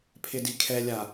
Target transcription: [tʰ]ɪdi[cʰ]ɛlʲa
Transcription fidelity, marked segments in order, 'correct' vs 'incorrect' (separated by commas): incorrect, incorrect